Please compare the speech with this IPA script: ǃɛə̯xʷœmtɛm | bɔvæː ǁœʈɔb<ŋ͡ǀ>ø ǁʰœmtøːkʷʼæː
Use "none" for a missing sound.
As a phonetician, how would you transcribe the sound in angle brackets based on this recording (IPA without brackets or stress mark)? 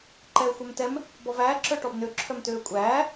n